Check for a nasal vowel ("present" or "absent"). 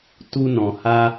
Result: present